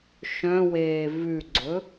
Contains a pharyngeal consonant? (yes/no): no